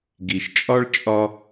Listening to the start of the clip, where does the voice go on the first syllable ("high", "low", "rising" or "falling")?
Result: low